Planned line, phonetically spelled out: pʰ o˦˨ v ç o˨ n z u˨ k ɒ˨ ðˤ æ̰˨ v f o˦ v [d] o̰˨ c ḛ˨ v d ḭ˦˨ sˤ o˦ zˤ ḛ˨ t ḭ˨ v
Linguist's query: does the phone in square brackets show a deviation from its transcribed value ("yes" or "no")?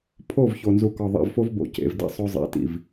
yes